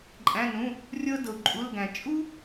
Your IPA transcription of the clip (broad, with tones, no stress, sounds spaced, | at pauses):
ǃʼ æ̃˧˥˧ n ũ˧˥˧ | rʲ ɤ˥ d ɤ˧ u̯ ǃʼ u˧˥˧ l ɡ æ̃˧ t͡ʃʼ u˥